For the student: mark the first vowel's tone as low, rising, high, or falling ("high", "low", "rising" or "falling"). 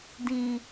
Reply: low